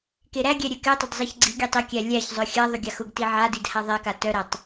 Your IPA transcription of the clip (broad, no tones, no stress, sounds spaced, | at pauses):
k e ɾ æ ɡʲ ɛ ɾʲ ɛ k ɛ tˤ ʏ d zˤ ɛ ç ɡ͡ǀ i ɡʲ e tˤ e kʲ æ lʲ æ ç zˤ œ xʲ a ðˤ ʏ ɡʲ a x ʊ ɡ t i ʕ a d i d h a ðˤ ɛ k a t œ ɾ æ tˤ